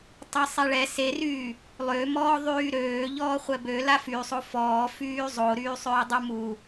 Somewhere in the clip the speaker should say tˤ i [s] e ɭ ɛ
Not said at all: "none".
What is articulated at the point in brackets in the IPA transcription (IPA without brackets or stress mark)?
sˤ